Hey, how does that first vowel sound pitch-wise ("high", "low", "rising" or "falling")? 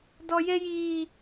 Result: high